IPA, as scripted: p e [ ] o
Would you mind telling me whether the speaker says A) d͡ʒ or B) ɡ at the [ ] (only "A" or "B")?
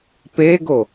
B